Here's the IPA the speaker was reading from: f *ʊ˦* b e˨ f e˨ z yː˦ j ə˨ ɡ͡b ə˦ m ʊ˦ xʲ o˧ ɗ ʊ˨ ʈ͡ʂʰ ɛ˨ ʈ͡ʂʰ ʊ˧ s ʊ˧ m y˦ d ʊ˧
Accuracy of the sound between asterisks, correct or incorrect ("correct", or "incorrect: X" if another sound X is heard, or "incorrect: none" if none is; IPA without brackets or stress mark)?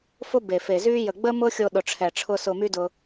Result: correct